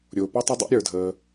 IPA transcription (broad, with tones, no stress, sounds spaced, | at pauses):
ɾʲ ʊː˩ p ʌ˥ tˤ ɪ˥ dˤ ɛ̰˥ ɾʲ ə˞˩ dʱ əː˩